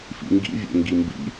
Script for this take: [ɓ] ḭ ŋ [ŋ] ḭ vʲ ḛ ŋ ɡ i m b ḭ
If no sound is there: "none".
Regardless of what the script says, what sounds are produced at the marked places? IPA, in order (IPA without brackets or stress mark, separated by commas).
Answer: f, ɡ